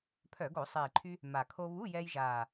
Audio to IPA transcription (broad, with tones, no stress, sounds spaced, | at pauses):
pʰ œ˧˩˧ ɡ o˧˩˧ sˤ iː˨˩ ǃʰ y˧ | m a˨˩ kʰ o˧ β u˧˥˧ j ɛː˧ j ʒ aː˨˩